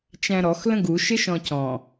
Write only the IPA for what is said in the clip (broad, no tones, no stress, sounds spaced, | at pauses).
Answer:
t͡ʃ æ̃ ɾ ɔ x l ə̃ ɡ u ʃ ɪ ʃ ɔ̃ c ɔ̃